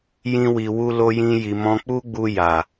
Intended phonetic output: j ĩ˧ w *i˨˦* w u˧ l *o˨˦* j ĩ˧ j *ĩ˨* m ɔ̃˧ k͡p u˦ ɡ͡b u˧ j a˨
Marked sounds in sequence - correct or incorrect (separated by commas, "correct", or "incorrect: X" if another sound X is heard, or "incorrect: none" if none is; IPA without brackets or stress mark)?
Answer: incorrect: i˨, incorrect: o˧, incorrect: i˨